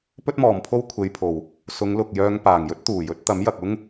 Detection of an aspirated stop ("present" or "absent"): present